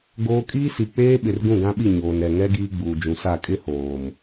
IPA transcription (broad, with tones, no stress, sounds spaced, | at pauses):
ɡ oː˦ kʼ iː˦ s i˨ k͡p eː˦ ɓ ɪ˨ r ɡ ũ˦˨ ɡ ã˦ ɓ i˦˨ ɲ oː˨ n ɾ ɛ˨ ŋ ɛ˦ ɡ iː˦ ɡ͡b uː˨ d͡ʒ ũ˨ s a˦˨ kʼ ɪ˦ h oː˨ m